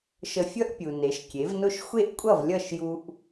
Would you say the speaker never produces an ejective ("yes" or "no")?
no